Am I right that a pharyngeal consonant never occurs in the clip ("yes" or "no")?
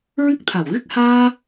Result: yes